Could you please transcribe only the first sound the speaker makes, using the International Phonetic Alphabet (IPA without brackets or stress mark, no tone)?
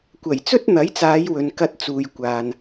kʷ